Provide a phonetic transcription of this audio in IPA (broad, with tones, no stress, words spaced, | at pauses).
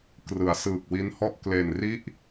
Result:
krɯ˩˦a̯sɯː˨˩k̚wi˦˥nhɔ˥˩ʔ kle˨˩nri˥˩ʔ